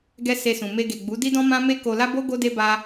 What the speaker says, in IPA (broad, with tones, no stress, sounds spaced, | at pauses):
ɡ ɛ˦ s e˧ s ũ˨ m e˧ ɡ e˨ ɡ͡b u˨˦ d i˦ d ɔ̃˦ m ã˦ m e˦ k o˧ l a˦ b o˦ ɡ o˦ d e˦ b a˦